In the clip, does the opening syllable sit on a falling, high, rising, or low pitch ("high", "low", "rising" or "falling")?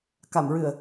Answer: low